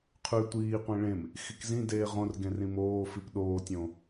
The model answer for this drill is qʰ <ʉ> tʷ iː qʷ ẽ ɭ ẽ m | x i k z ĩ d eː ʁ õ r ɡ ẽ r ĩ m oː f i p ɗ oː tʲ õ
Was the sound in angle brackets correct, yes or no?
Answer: yes